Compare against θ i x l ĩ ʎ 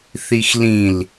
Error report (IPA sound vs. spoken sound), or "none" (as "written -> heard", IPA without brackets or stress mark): ʎ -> l